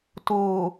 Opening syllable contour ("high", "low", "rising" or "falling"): low